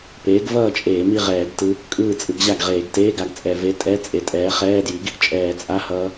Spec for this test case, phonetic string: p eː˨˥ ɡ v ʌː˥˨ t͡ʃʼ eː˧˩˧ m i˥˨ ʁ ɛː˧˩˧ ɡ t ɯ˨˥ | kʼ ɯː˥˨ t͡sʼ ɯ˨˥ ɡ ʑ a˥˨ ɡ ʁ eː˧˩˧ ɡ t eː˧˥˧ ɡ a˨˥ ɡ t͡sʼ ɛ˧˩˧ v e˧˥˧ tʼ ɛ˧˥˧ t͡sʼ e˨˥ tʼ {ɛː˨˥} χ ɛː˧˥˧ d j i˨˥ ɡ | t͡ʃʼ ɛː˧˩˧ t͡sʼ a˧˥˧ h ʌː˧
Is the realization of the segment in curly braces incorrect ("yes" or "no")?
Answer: no